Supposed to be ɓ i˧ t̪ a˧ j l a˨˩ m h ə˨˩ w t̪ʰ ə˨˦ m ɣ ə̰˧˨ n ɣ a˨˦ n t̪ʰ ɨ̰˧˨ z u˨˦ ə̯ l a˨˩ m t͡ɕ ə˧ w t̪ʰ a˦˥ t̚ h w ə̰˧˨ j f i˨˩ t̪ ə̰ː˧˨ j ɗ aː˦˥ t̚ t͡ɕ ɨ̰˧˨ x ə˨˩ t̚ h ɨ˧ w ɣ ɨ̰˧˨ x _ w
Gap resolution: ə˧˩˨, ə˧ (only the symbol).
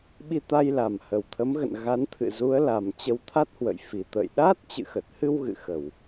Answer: ə˧˩˨